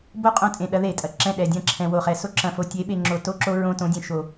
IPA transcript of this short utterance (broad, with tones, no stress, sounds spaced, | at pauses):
b o˦˨ qʼ õ˦ tʼ ẽ˨ ɗ ɐ˨˦ ð e˨ tʼ ɐ˨ ǁ ɛ̃˦˨ ɗ ɛ˨ dʲ ɐ̃˦˨ ǁʰ ɛ̃˨ w o˨ χ ɛ˨ s o˦ ǁ ɐ̃˨ f o˨ tʲ e˨˦ ɓ e˨ ŋ͡ǁ o˨ t o˦ ǁ o˦ ɹ õ˦ t õ˨˦ dʲ ɛ̃˨ ʃ o˨